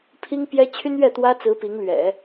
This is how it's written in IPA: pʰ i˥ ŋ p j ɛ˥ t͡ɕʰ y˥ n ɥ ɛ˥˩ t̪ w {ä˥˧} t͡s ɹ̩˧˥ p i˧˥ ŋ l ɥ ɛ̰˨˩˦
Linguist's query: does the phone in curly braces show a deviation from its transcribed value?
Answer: yes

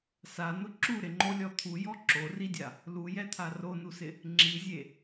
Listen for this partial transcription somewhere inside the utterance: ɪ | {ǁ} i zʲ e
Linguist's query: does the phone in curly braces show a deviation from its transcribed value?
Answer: yes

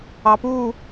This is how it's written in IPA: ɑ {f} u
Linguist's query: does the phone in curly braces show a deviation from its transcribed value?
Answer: yes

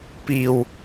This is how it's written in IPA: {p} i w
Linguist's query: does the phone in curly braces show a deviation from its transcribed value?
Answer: no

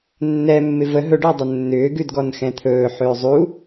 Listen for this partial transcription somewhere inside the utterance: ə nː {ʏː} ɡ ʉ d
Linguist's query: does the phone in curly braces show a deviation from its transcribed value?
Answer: no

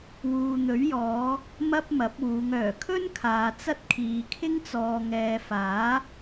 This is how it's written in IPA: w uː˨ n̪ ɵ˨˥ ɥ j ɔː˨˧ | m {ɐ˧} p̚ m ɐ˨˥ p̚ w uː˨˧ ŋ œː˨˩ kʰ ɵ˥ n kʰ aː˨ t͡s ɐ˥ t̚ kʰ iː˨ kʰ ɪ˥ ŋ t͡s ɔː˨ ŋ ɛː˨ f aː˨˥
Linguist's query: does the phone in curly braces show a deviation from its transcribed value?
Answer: yes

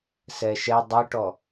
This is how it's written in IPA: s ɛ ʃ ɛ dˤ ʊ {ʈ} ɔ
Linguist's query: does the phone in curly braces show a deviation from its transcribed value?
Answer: no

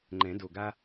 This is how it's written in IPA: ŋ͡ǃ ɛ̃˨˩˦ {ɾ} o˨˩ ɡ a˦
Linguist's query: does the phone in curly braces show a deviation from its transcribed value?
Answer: yes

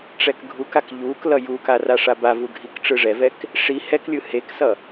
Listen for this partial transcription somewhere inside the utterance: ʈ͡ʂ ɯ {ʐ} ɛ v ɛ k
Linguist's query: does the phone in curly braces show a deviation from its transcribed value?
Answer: no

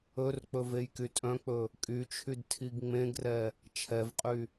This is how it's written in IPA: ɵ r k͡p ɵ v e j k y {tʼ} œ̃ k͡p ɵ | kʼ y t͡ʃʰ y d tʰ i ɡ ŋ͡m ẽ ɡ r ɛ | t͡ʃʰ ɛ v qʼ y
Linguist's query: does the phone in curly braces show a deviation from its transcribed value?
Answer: no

